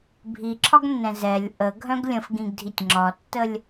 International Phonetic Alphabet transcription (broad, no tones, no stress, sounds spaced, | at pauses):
bʱ i ǁʰ ɒ ɡ nː ɛ̃ z ɛ lʲ ʔ ə ɡʱ œ̃ ɡ lʲ ə̃ f ɡ ĩ ɡ dʱ i tʲ ŋ͡ǁ ɒ tː ə lʲ